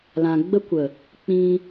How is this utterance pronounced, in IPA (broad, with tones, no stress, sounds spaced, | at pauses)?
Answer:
l ã˧ ɡ͡b ə˦ kʷ ə˨ | k͡p ĩ˧